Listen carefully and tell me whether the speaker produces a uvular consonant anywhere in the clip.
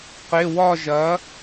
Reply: yes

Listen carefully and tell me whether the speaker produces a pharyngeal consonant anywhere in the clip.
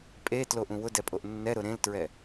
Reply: no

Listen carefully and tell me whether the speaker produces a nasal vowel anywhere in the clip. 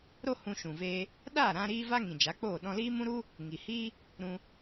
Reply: yes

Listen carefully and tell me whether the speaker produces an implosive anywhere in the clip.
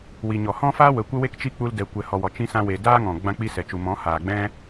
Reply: no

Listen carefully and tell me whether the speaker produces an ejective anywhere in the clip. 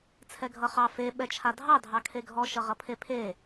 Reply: no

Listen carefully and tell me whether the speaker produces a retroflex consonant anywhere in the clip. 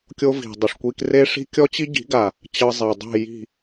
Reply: yes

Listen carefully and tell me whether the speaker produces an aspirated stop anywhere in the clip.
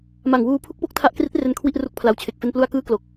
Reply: yes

